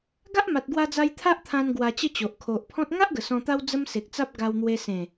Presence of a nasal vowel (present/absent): present